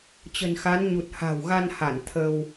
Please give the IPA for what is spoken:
t͡ɕ ə̤˨˩ n x a˨˦ n ɲ u˨˩ t̚ h a̤˨˩ w ɣ a˧ n h a˧˩ n t̪ʰ ə˧ w

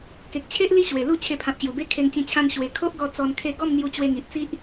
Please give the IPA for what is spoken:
k e˨ k̚ t͡ɕʰ e˦ ʔ l i˦ ɕ w e˨˩ l u˥˧ t͡ɕʰ e˧ pʰ ã˨ p̚ ɕ j u˨˩ b e˦ kʰ e˧ ŋ t͡ɕ ĩ˧ t͡ɕʰ ã˧ n ɕ w e˨˩ kʰ o˦ ʔ ɡ ɔ˧ t͡s ɔ˧ n kʰ e˥˧ ɡ ɔ˥˧ m n̪ j u˧ t͡ɕ w e˧ ŋ i˨ ʔ t͡s i˦ ʔ

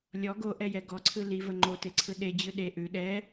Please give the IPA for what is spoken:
lʲ ɔ ɡ o ʔ ɛ j ɛ ɡ ɔ ǀʰ ɯ l i v ə ŋ͡ǃ o t e ǀʰ ɯ ɗ e d͡ʑ ɯ ɗ e ʔ ʉ ɗ ɛ

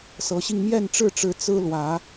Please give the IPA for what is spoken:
s ɤ˨˦ ɕ i˧ ŋ m j ɛ˥˨ n ʈ͡ʂ ɻ̩˥˨ ʈ͡ʂ ɻ̩˨˦ t͡s ɹ̩˦ l w ä˨˦

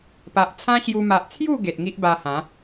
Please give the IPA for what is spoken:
p a˨ ʔ t͡sʰ ã˦ ɕ j u˧ m a˨ ʔ t͡sʰ j u˥˧ ɡ e˨ t̚ ŋ i˦ ʔ b a˧ h ã˨˦

